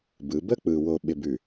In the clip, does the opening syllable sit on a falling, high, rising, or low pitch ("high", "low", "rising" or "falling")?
rising